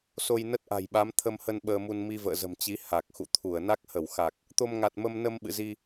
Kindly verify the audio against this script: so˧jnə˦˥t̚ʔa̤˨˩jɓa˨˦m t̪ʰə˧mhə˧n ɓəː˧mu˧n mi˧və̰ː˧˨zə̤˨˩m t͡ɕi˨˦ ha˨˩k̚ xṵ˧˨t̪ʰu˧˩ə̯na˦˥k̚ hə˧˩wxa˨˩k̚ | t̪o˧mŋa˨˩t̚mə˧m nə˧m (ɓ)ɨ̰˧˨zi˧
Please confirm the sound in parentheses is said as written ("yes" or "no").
yes